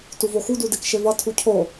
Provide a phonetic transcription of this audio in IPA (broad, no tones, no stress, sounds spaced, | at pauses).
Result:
t u v o x u d u d e k ʃ e v ʌ tʰ u cʰ o